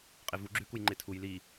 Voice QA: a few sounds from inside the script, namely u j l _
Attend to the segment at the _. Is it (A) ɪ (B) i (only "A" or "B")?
B